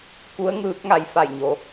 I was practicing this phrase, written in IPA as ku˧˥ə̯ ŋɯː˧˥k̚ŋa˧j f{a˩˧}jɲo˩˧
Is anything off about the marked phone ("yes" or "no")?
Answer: yes